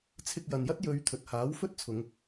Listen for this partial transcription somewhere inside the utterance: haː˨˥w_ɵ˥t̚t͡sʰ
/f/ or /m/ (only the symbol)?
f